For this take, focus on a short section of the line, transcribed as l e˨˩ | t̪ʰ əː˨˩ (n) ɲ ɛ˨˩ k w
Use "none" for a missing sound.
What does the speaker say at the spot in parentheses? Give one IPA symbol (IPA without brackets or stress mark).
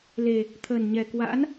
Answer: n